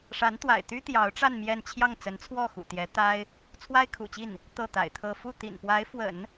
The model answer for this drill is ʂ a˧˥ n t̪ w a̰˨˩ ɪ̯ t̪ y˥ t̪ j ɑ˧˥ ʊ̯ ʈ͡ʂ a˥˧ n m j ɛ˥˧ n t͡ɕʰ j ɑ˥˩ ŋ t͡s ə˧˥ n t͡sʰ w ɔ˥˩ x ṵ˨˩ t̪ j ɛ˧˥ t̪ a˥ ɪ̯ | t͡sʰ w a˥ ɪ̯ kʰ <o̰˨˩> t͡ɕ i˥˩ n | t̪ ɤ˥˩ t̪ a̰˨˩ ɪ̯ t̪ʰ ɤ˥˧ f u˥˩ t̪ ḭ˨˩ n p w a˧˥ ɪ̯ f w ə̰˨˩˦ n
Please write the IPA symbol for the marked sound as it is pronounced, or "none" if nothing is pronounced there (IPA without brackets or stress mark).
ṵ˨˩